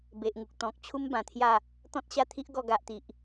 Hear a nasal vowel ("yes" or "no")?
yes